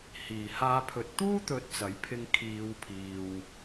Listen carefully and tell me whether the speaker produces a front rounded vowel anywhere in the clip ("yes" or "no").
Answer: no